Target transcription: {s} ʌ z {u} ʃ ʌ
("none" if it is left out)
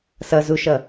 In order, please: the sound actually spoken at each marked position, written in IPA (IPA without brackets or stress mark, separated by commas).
s, u